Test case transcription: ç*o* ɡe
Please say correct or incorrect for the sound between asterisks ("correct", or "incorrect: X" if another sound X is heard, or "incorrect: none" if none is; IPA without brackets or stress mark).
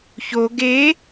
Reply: correct